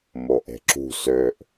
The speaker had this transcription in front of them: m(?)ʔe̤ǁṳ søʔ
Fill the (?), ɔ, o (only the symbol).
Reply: o